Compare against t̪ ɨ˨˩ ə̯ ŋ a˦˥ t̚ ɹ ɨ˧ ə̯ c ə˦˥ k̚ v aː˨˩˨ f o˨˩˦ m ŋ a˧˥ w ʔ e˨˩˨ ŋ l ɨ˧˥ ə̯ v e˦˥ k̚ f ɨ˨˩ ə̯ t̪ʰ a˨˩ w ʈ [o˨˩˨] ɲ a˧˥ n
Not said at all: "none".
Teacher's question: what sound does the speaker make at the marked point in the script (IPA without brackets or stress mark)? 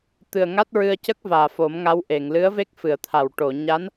o˨˩˨